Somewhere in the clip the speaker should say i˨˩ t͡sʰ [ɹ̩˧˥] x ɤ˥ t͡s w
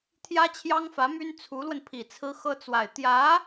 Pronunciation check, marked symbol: incorrect: ɹ̩˥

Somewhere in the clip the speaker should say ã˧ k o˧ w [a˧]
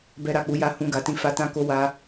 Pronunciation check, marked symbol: correct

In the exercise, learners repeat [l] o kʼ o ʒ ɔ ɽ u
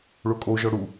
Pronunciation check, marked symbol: incorrect: ɭ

